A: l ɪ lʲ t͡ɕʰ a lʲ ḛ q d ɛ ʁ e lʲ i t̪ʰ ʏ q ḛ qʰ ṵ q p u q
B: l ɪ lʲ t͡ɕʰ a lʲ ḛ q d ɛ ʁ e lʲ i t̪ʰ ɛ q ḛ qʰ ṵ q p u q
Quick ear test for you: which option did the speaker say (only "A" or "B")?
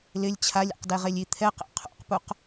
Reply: B